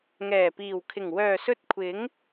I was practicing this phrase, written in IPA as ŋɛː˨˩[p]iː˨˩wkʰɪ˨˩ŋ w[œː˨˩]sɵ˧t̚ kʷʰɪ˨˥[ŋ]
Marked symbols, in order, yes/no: yes, yes, yes

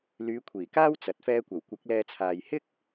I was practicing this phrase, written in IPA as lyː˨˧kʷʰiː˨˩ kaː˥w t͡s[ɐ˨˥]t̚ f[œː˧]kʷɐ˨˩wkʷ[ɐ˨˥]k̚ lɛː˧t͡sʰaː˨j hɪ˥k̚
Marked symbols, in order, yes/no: yes, no, yes

